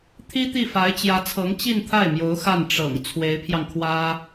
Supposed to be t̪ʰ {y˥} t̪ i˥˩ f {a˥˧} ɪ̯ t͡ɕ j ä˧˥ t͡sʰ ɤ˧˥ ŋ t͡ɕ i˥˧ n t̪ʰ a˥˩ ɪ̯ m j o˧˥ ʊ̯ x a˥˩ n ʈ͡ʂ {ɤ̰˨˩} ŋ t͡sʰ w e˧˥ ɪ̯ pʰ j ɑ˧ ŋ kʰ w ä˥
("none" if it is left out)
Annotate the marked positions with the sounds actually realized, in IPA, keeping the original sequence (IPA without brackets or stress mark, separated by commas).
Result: i˥, a˧˥, ɤ̰˨˩